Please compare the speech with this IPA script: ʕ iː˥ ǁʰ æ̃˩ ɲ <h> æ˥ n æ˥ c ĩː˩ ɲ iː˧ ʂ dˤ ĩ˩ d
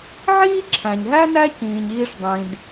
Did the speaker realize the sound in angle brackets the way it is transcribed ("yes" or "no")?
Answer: no